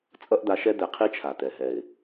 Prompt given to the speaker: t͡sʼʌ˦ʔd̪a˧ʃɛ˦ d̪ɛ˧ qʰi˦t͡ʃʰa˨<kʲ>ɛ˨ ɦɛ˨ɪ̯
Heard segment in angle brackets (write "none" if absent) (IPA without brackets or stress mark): t̪